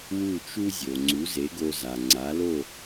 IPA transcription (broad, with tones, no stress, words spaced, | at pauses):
wu˥˩t͡ʃu˥zʲo˩ ŋ͡ǀu˩˥ze˩˥ɡo˧ za˩ŋ͡ǀa˩˥lo˥˩